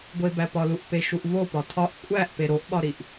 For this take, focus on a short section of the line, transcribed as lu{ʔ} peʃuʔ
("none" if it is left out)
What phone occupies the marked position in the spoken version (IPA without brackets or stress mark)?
ʔ